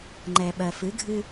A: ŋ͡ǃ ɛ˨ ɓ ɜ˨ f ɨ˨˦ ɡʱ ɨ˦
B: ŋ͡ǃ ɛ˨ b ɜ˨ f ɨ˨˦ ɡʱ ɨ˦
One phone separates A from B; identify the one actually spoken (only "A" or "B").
A